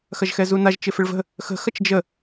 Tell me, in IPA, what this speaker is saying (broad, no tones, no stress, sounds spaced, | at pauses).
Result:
x ɐ ʒ x ɛ z u n a ʒ t͡ʃ ɪ f ɪ ɭ v ə̤ | x ə̤ x ɐ t͡ʃ d͡ʒ ə